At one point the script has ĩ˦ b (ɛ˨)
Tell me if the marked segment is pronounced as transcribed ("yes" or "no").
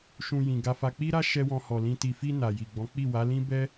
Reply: no